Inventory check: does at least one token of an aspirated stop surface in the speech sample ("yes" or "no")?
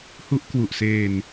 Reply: no